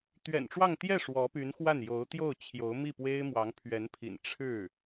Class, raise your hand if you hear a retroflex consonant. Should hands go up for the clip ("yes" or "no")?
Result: yes